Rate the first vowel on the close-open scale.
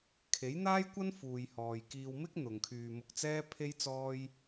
mid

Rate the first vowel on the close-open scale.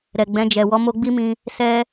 mid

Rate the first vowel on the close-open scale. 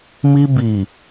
close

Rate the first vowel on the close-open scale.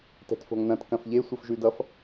mid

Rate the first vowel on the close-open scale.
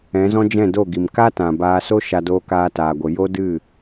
mid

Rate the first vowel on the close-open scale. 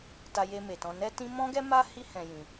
open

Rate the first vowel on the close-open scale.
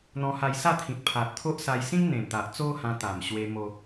mid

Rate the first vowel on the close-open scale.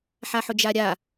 open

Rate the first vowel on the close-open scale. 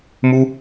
close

